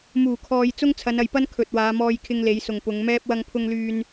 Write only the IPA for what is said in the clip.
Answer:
m uː˨˩ kʰ ɔː˨ j t͡s ʊ˥ ŋ t͡sʰ ɐ˨˧ n ɐ˨ j p ɐ˥ n kʰ ɵ˨ t̚ w aː˨˧ m ɔː˧ j kʰ ɪ˧ ŋ l e˨˧ j s ʊ˨ ŋ p ʊ˨˧ ŋ m ɛː˥ p̚ w ɐ˧ ŋ pʰ ʊ˧ ŋ l yː˧ n

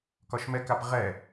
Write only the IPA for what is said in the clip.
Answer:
k ɒ ʃ m ɛ k a p ʁ ɛ

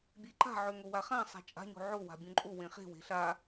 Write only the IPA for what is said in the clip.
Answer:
bʲ e ǃ a̤ ʕ ø ŋ o w a χ ã sˤ a̤ t͡ʃʼ a̤ ɲ o̤ ʕ o w a̤ bʲ õ ǃʼ o w ẽ χ e̤ w e̤ ɬ a

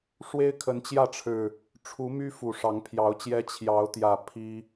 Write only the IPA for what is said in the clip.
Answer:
ʂ w e˦ ɪ̯ kʰ ə˨˦ n t͡ɕ j ä˥˨ ʈ͡ʂʰ ɻ̩˨˩ | ʈ͡ʂʰ u˨˦ m y˦ f u˨˩ ʂ ɑ˨˦ ŋ pʰ j ɑ˨˦ ʊ̯ t͡ɕ j ɛ˦ t͡ɕʰ j ɑ˨˦ ʊ̯ t̪ j ä˨˩ pʰ i˦

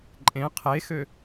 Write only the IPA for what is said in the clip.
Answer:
ǃʼ ẽ qʰ e x ø

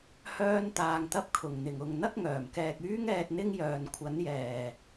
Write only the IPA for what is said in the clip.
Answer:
h œː˥ n t̪ aː˧ ŋ t̪ ɐ˥ p̚ kʰ ʊ˨˩ ŋ n̪ ɪ˨˩ ŋ ʊ˨ ŋ n̪ ɐ˥ k̚ ŋ œː˨˩ m k ɛː˨ k̚ yː˥ ŋ ɛː˧ t̚ n̪ ɪ˥ ŋ j œː˨ n kʷʰ ɐ˨˥ n j ɛː˨˩

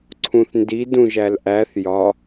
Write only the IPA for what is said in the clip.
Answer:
ǀʰ ũ θ n d i d ũ ʒ æ l ʔ æ θ j ɒ

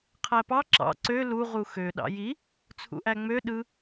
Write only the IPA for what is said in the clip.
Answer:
qʰ æ p ɑ ǁ ɑ̰ ǀ ø l u ʁ u x ø ɗ ɑ̰ j i | t͡sʰ ṵ ʔ æ ŋ͡m ø ɗ ɯ

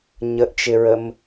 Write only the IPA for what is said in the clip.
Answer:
ɲ ə ʔ t͡ʃ ɪ ɹ ə m

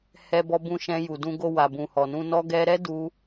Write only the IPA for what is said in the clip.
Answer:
h ɛ˧ b ɔ˧ b ũ˧ ʃ ɛ̃˧ j u˨ d ũ˧ ɡ o˧ w a˨ b ũ˨ h ɔ˨ n ũ˧ n ɔ˧ ɡ ɛ˧ ɾ ɛ˦ d u˧

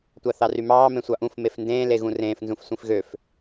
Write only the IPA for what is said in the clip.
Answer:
tʷ ɑ θ ɑ r y m ɑː m ẽ sʷ ɑ ʔ ũ f m e f n d ẽː l e ɣ ũ r ẽː f n z ũ f sʷ ĩ f ɣ ø f

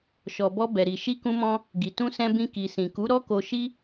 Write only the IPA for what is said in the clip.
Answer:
ʃ ɔ˨ b ɔ˧ b ɛ˨ ɾ i˨ ʃ i˧ k ũ˧ m ɔ̃˧ | ɡ i˨ t ũ˧ s ɛ̃˧ b ĩ˧ k i˨ s ĩ˨ k u˨˦ ɾ ɔ˦ k o˧ ʃ i˦

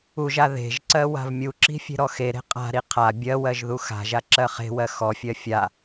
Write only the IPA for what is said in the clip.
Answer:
u ʒ a ð e̤ ʒ ǀ ɜ w a̤ v mʲ u ǁ i̤ fʲ e̤ ɾ ɔ x e ɾ e̤ qʼ a̤ ɾ i qʰ a bʲ ɜ w ɜ ʒ ð u x a̤ ʒ a ǁ ɜ χ e̤ w ɜ x ɔ fʲ ɜ fʲ a

